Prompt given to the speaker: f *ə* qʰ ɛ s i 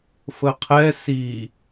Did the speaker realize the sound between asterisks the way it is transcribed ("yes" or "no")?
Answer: yes